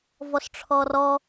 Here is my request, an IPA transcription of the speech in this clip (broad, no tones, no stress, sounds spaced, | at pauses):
v ɔ s ʈ͡ʂʰ ɔ r ɔ